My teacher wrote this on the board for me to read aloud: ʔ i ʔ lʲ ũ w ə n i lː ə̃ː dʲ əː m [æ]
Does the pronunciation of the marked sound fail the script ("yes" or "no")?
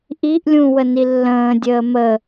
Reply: yes